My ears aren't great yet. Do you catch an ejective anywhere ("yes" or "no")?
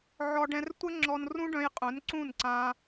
yes